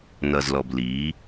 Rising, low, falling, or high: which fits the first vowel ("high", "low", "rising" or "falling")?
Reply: low